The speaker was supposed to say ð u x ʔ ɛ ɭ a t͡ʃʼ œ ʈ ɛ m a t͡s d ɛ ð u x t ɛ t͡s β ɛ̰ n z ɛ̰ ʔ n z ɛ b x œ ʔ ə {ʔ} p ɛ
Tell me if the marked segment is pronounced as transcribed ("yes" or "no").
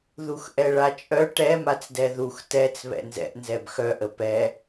no